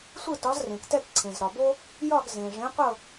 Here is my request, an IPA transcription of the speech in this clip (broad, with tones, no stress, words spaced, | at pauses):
sʷɯ˥˨tɒ˨˥zrẽ˩ktɛ˥˨k ǀʰẽ˩zɾɒ˩bo˥ | jɒ˥˨ɡ zẽ˩ʐẽ˨˥qʷɤ˥˨